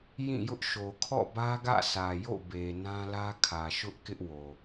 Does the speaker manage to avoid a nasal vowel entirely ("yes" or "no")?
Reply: no